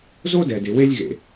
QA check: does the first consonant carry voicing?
yes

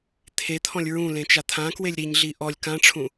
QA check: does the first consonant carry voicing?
no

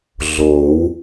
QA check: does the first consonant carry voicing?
yes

